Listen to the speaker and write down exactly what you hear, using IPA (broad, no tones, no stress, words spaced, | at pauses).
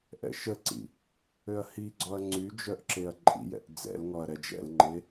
ʔɛ̰ʃəǀḭ | øɐ̯hiɡ͡ǀɔɐ̯ ŋ͡ǀy d͡ʒœʔǁeɐ̯ǃʼḭjɛ̰ʔ d͡zɛ̰lŋɔɐ̯ ɾɛd͡ʒɛ̰lŋ͡ǃe